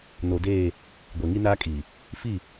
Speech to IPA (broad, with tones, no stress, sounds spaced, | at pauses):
n o˨ d eː˦˨ | ɡʷ ɛ˨ ŋ i˦ n aː˦ kʼ iː˨ | f i˦˨